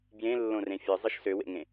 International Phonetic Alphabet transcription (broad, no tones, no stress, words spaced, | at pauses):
bjẽlːõrẽ fʲɯzˤɯʃ søwḛŋẽ